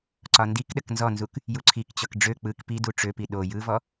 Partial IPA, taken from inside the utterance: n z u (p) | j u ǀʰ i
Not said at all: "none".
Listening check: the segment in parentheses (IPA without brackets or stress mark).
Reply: k